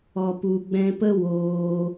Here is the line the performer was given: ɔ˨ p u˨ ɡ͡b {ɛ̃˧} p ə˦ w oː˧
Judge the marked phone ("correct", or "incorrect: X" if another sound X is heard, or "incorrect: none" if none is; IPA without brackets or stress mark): correct